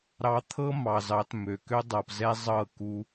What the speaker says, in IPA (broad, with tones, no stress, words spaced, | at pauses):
ɾɑ˧t̪ʰɤ˦ mɑ˨zɑ˨˦t mø˨kø˦ dˤɤ˨pzɛ˦ zˤɤ˦˨ku˧